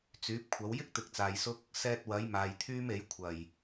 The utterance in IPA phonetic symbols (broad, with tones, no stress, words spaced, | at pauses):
t͡syː˨˥p̚kʷʰɐ˨˥w jɪ˥k̚t̪ɪ˨k̚ t͡saː˨jsʊ˥k̚ | sɛː˧t̚wɐ˨˥j maː˨jt̪ʰyː˥me˨˥j kʷʰɐ˨˩j